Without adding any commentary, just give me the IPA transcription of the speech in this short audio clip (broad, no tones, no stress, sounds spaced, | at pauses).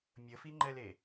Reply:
mʲ ə f i ŋ͡ǃ ɛ l e